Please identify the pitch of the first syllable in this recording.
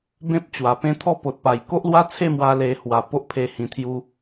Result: high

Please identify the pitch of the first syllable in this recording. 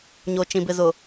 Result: low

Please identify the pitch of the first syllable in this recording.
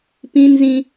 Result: high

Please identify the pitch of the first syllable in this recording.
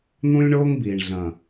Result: high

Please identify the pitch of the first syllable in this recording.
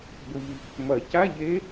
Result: low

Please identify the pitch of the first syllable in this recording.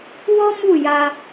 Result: high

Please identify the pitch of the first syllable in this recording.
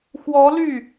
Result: rising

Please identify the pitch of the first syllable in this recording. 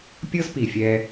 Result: high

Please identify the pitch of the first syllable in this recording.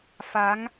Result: rising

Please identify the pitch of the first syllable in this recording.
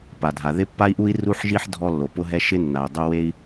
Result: low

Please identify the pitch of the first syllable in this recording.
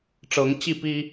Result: rising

